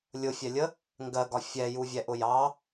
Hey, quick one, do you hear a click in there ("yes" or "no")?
no